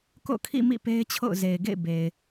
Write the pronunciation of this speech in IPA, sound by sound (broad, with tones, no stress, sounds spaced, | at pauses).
k o̰˦˨ kʰ ḭ˦˨ m ḭ˦˨ p e˦ ɪ̯ t͡ɕʰ o̰˦˨ ʊ̯ z e˨ ɪ̯ ɡ ḛ˦˨ ɪ̯ b e˨ ɪ̯